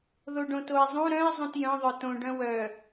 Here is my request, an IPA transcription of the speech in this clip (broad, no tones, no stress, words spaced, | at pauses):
ðoɖõtoe̯zˤũ ɾœ̃e̯ zˤũtjœ̃ðˤœ tõɖœ̃ wœ